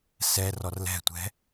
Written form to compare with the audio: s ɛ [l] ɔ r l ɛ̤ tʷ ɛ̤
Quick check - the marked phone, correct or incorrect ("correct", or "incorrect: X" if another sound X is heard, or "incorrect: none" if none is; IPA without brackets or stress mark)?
incorrect: r